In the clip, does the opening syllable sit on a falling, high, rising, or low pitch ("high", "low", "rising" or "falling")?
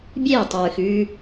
falling